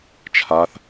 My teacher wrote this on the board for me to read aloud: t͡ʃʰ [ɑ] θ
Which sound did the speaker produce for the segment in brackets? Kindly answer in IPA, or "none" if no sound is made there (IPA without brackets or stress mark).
a